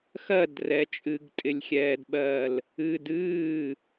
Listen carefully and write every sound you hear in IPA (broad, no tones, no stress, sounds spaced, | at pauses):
x ɜ d r ɛ t͡ʃʼ ɨ ɡ tʼ ɪ lʲ xʲ ɛː d ɓ ɜː l | ɨ d ɨː